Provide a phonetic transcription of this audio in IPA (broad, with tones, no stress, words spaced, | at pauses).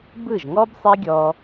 bɯ˦˨ʒŋɔ˦b sˤe˦ɡʲɔ˧